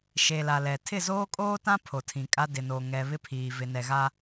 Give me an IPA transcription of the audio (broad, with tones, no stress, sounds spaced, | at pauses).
ʃ e˨ l a˨ l ɛ˨ tʰ ɪ˦˨ z oː˦ kʼ oː˦ t ã˦ pʰ o˨ tʰ ĩ˨ kʼ a˦ d ɪ˨ n oː˨ ŋ ɛ˨ β ɪ˦ pʰ iː˨ v ɪ˨ n ɛ˨ ɣ a˦